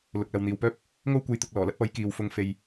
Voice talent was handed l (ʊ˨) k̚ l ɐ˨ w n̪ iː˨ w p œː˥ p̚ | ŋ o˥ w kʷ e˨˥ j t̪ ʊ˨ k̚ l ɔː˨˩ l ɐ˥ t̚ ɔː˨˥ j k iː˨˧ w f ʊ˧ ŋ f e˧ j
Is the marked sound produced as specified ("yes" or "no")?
yes